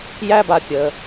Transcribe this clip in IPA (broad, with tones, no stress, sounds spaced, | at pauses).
j æ˦ b a˨ pʲ ə˩